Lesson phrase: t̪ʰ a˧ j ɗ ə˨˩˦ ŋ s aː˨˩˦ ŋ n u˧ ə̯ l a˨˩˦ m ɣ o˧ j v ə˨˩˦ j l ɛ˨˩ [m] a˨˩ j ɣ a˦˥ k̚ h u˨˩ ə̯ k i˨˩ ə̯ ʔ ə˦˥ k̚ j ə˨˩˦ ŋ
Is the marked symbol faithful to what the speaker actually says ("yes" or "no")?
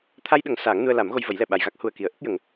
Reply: no